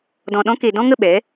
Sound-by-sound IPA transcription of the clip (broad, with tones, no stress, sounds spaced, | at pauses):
d ɔ̃˧ ɗ ɔ̃˦ k e˧ d ɔ̃˦ ŋ ə˦˨ ɓ ɛ˨˦